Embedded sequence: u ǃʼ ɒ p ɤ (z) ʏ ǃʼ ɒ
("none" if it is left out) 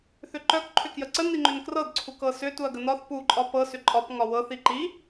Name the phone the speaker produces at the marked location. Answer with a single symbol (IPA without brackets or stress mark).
s